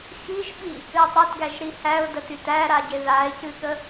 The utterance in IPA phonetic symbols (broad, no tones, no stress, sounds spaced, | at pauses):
x i ʒ ɓ i | ɨ ɪ̯ tˤ e t ɡ æ ʒ ɾ i h æ ʊ̯ d ə t y t æ ɾ a ɟ e ð a ɪ̯ c ɨ ɠ ə